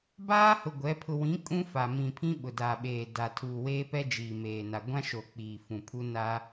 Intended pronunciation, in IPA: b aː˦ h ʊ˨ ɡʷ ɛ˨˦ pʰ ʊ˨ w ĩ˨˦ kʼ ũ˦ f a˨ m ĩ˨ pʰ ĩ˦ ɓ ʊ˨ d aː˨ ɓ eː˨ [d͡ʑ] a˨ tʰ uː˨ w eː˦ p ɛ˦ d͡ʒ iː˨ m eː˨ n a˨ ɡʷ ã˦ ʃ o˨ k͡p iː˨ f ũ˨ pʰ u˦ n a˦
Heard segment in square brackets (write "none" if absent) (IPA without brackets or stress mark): d